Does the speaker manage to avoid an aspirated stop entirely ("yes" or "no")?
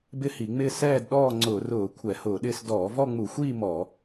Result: no